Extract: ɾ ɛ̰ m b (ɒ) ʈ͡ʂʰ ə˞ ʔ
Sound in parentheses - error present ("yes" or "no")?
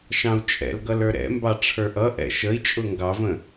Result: yes